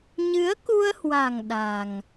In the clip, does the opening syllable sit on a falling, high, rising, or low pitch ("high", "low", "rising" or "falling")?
rising